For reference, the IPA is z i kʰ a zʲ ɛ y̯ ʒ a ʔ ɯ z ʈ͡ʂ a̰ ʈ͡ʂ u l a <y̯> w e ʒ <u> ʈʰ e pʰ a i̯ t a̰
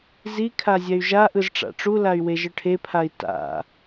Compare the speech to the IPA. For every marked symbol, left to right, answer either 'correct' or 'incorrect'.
correct, incorrect

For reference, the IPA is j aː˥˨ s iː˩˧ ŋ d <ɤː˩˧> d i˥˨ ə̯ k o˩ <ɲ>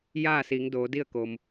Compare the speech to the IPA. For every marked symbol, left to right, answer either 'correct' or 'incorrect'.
incorrect, incorrect

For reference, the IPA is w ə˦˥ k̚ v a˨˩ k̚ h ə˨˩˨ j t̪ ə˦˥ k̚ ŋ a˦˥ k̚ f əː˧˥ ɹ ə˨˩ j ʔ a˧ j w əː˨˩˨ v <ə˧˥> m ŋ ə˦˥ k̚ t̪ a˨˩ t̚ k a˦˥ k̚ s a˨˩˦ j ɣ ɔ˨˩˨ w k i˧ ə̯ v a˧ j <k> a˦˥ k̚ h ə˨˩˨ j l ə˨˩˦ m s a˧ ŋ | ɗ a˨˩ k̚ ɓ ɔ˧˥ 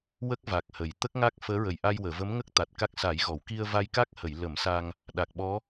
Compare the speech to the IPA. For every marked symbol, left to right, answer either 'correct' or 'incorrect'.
correct, correct

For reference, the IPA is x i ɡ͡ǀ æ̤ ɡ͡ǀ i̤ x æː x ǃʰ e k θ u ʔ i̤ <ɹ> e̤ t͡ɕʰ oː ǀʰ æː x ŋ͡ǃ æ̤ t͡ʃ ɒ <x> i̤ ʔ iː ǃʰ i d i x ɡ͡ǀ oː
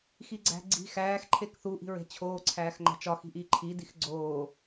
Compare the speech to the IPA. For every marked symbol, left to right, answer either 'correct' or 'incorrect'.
correct, correct

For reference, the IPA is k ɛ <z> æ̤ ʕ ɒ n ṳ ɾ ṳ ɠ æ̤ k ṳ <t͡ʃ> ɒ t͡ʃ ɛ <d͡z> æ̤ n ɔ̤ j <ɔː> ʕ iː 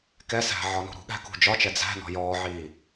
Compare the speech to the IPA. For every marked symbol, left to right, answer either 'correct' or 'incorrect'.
incorrect, incorrect, correct, correct

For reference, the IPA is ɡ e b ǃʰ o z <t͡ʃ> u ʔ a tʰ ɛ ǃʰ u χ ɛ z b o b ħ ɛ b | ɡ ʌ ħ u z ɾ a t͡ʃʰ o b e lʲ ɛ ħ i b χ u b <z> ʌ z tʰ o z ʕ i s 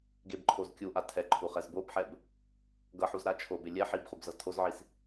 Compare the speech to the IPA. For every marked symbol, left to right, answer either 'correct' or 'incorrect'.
incorrect, correct

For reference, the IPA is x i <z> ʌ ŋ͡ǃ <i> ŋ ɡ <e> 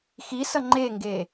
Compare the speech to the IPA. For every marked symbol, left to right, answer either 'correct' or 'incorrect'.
incorrect, incorrect, correct

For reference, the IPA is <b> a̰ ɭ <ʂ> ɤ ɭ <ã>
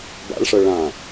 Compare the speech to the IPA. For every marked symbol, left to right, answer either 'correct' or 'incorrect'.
correct, correct, correct

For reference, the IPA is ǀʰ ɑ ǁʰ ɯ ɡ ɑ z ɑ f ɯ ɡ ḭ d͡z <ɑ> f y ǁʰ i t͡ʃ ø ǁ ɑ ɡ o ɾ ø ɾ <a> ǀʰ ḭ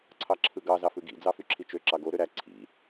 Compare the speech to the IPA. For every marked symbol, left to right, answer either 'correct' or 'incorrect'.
correct, incorrect

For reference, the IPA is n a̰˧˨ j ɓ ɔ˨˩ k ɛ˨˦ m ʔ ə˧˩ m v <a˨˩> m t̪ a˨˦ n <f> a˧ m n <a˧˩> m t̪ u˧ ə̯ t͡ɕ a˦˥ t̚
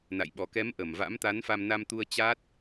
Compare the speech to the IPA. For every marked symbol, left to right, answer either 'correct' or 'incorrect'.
incorrect, correct, incorrect

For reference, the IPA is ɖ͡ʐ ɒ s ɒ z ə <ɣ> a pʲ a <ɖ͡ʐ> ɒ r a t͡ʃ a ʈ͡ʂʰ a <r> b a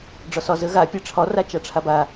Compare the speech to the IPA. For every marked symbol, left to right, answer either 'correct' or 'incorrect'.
correct, incorrect, incorrect

